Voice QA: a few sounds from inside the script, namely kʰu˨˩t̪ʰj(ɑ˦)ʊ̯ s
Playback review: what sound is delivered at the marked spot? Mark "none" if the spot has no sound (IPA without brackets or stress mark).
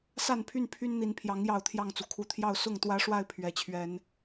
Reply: ɑ˥˨